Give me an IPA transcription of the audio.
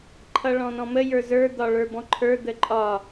ǃʰ ʌ ɭ ɔ̃ n ɔ̃ m ə j ə˞ z ə˞ d̪ ɒ ɭ ə˞ b ɔ̃ ǃʰ ə˞ d̪ ə ǃʼ ɒ

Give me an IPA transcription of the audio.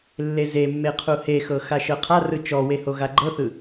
lː e z e mː e qʰ u h e x ɤ x a ʃ ɤ qʰ a r ɯ t͡ʃ ɔ w e h o ɣ a ɡ͡ǃ ɤ θ ɯ

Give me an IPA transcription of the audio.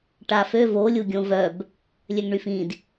ʈ a f ø v o lʲ u ɡʲ õ v œ b | lʲ ø ŋ ɳ y f ĩ d

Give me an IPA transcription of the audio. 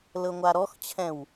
l ɤ ŋʷ a ɾ ɔ x t͡ɕʰ ɛ̃ w

